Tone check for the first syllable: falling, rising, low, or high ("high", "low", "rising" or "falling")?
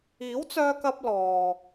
rising